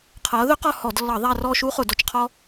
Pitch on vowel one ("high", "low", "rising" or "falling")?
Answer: rising